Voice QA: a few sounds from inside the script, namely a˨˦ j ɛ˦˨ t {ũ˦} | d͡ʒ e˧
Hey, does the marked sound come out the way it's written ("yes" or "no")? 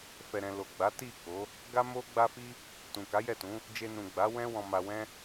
no